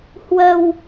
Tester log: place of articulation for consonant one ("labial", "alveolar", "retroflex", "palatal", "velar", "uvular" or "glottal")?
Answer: glottal